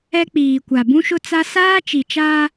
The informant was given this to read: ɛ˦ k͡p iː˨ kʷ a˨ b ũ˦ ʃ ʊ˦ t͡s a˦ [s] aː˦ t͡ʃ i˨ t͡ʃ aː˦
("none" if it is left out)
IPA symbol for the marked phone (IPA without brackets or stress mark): s